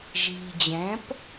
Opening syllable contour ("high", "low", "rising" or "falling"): low